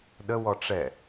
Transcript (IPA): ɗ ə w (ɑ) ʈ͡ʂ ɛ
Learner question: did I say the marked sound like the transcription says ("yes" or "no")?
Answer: no